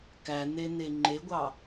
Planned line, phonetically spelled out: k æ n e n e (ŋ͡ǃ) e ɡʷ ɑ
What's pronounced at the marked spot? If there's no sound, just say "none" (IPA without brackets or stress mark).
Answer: ŋ͡ǃ